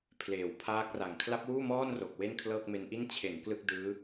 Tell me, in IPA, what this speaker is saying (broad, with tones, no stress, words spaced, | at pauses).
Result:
pʰleː˩˦w pʰaː˦˥k̚ra˨˩ŋ kʰla˦˥p̚wuː˥˩mɔː˥˩nro˨˩k̚ we˥˩nkʰlɤː˥˩k̚me˦˥nʔi˥˩n t͡ɕʰe˩˦n klɯ˥˩k̚dɯː˦˥